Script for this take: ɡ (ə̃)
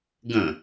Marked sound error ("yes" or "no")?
no